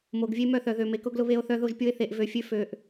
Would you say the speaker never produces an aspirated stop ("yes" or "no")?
yes